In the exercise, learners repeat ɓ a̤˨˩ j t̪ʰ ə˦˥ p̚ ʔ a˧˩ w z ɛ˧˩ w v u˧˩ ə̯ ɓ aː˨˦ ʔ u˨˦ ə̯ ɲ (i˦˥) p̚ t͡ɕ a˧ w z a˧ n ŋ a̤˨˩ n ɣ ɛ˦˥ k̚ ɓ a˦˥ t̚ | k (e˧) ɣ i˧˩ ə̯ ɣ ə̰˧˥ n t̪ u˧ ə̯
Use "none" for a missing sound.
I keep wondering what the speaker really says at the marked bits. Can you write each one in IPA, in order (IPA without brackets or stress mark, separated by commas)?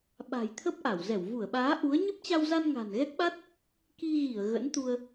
ɨ˦˥, i˧